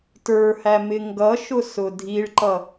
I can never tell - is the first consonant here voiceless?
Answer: yes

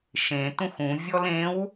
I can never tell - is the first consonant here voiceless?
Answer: yes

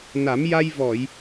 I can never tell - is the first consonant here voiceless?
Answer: no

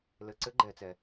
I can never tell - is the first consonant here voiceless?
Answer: no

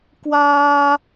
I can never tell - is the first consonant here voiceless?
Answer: yes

